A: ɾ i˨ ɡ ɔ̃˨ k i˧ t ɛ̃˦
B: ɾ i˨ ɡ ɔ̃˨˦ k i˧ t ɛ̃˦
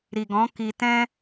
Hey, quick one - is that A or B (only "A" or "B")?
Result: B